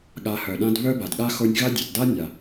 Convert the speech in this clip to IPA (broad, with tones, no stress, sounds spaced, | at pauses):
ɠ a˨ h œ˩ ɗ ã˦ d β œ˥ b a˩ d ɠ a˥ x o˦ nʲ ɣ a˥ dʲ œ˩ t d a˥ nʲ a˩